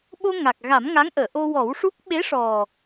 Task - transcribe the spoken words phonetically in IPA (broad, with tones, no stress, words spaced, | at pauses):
ɓo˧ ŋa˨˩k̚ɣa˨˩˦m ŋa˧˥ŋʔəː˨˩˨ʔo˧wɔ˨˩˦w ʂu˦˥k̚ ɓe˧˥ʂɔ˨˩